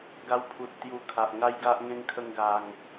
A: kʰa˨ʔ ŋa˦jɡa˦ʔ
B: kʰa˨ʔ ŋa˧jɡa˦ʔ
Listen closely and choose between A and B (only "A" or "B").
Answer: A